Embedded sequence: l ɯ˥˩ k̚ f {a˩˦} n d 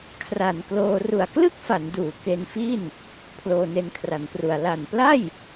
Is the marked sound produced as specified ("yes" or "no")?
yes